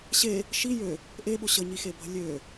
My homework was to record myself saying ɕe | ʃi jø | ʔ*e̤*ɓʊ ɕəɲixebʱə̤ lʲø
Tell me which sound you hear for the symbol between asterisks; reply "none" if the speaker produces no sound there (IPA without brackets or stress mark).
e